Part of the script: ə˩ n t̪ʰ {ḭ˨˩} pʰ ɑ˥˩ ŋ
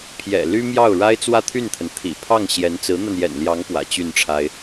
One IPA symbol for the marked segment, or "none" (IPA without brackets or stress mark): ḭ˨˩